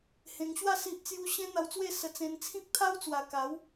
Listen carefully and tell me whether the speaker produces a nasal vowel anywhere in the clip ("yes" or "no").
yes